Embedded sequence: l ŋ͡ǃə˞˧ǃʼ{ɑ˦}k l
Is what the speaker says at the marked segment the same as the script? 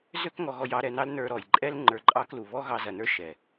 yes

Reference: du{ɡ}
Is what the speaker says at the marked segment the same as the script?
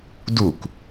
no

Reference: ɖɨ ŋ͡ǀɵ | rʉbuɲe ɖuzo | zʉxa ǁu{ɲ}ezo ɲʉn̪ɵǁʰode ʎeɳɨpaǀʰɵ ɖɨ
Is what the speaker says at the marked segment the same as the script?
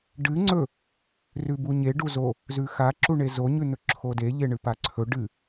no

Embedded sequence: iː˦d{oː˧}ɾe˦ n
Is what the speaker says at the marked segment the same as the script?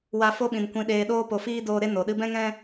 yes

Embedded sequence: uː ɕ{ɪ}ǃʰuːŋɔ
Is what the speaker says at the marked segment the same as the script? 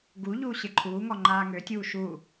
yes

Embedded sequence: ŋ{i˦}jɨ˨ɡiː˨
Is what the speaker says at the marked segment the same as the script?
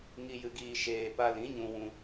no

